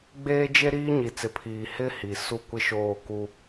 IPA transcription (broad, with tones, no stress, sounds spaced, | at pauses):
ɡ͡b eː˦ d͡ʒ e˦ ɾ iː˦ ɲ i˨ t͡s ɪ˨ pʰ iː˨ h ɪ˦ h i˨ s u˦˨ kʷ ɪ˦ ʃ oː˦˨ k u˦